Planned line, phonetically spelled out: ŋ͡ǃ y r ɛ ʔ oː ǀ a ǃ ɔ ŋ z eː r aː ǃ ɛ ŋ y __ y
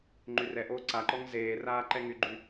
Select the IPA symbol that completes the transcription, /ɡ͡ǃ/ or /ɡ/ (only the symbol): ɡ͡ǃ